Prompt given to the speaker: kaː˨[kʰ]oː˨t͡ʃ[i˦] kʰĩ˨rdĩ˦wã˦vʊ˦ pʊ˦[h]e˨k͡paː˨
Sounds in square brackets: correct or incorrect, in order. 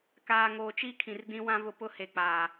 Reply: incorrect, correct, correct

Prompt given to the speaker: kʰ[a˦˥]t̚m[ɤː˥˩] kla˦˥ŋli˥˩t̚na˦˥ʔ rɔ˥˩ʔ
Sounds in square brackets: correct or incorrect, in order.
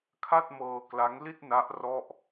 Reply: incorrect, incorrect

